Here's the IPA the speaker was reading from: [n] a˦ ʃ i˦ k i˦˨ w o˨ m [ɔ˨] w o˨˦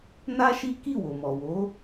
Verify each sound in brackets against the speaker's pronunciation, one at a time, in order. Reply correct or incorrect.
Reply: correct, correct

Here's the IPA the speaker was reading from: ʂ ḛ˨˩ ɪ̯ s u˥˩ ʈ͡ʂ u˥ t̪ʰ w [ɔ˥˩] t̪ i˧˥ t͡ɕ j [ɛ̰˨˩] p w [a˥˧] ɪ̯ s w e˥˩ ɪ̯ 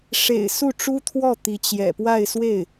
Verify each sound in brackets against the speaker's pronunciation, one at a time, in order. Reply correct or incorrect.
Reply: correct, correct, correct

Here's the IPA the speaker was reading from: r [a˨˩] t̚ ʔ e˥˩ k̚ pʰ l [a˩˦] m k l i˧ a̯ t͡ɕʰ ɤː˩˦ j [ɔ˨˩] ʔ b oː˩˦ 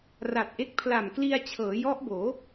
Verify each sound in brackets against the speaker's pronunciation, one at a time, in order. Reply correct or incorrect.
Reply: correct, incorrect: a˨˩, incorrect: ɔ˦˥

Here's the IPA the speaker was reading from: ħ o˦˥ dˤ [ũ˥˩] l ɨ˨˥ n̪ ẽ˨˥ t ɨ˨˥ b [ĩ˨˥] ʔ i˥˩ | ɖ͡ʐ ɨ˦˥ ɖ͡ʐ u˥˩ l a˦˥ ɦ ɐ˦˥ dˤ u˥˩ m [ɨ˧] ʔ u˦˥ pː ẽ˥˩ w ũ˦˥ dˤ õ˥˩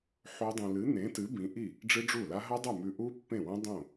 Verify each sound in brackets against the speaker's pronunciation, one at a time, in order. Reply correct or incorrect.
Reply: incorrect: ũ˧, correct, incorrect: ʉ˧

